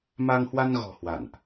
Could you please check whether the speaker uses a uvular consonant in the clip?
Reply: no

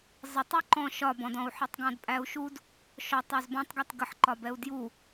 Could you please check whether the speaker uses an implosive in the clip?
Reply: no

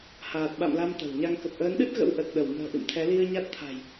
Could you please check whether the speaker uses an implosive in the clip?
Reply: yes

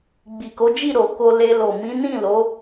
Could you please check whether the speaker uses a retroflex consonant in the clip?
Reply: no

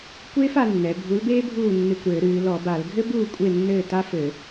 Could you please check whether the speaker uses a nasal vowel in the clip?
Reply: no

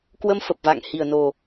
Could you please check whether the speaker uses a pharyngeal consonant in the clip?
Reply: no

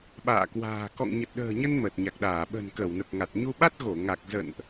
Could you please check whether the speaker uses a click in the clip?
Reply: no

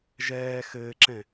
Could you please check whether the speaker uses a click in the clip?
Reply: yes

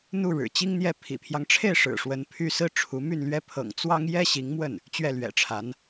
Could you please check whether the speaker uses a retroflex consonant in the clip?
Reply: yes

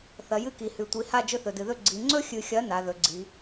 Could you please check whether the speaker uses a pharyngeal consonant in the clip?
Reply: no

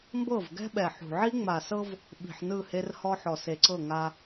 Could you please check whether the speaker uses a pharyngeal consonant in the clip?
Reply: yes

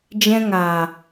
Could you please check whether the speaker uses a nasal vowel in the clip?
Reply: yes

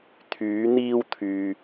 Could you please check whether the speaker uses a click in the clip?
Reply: no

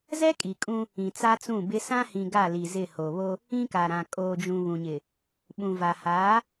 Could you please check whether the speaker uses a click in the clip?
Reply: no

